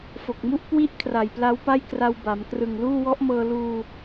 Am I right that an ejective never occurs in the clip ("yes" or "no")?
yes